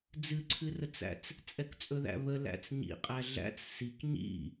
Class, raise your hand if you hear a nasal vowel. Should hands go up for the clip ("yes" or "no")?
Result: no